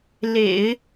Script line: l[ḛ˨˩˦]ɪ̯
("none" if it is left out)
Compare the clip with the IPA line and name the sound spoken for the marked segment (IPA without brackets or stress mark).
ḛ˨˩˦